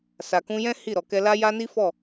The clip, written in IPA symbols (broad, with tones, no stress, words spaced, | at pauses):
sa˨kũ˧jɛ̃˦ hi˦˨ɾɔ˨ kɛ˧la˦ja˦ ni˦fɔ˦˨